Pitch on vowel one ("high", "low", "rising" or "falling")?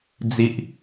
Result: low